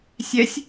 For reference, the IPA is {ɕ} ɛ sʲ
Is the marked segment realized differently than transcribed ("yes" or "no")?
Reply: yes